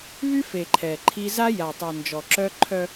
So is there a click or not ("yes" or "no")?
yes